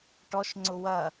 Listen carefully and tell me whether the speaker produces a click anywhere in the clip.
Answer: yes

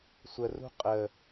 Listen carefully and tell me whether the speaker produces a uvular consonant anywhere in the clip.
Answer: yes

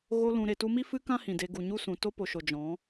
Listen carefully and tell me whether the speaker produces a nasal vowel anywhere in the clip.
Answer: yes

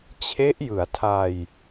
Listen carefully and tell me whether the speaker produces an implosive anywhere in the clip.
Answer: no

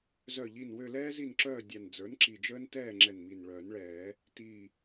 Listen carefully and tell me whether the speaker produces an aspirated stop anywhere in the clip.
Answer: no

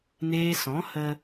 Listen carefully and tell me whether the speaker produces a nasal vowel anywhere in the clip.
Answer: yes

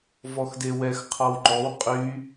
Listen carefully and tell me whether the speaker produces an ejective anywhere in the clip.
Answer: yes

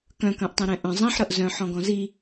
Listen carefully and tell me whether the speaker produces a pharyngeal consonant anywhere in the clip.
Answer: yes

